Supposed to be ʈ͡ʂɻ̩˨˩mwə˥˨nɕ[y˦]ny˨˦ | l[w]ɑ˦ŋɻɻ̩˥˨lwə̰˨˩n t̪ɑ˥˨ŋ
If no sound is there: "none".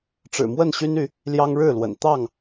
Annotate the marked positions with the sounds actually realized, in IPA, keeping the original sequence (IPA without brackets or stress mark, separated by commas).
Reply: y˦, j